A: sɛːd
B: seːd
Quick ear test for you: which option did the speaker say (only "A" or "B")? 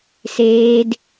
B